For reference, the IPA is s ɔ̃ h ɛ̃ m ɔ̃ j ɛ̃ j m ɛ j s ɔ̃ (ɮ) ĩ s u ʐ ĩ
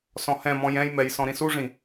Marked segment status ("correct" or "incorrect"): incorrect